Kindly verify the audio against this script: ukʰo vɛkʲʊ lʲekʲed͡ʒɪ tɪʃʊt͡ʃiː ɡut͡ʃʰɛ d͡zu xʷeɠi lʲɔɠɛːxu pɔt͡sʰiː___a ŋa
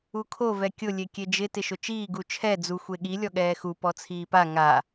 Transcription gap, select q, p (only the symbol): p